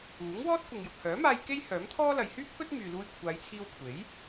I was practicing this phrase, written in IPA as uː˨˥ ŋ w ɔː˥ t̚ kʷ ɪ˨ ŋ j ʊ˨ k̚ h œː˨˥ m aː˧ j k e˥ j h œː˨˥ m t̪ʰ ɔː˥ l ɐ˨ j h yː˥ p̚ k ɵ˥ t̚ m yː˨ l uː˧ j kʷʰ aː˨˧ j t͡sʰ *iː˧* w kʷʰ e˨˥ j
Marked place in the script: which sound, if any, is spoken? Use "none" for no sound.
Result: iː˧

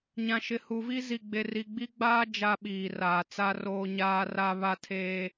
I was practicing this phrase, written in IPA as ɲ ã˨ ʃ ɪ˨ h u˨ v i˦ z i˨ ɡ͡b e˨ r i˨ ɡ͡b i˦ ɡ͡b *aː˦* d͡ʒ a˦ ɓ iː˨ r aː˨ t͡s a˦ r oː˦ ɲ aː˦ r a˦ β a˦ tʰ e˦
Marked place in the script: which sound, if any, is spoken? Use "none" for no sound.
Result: aː˦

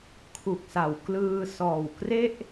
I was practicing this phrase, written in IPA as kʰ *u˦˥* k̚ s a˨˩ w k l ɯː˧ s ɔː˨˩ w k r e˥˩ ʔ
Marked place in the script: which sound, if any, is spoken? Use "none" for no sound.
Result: u˨˩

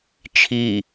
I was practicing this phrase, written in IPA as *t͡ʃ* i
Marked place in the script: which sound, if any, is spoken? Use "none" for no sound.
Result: t͡ʃʰ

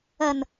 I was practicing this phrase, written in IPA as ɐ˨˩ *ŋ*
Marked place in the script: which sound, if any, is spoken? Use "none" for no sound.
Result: n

